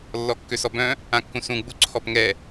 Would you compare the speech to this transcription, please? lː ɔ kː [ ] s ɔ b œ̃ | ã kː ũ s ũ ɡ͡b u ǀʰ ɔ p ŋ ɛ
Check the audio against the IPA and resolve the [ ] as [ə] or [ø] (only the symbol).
ø